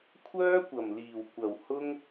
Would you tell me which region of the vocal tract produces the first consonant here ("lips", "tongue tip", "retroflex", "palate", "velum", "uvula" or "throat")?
velum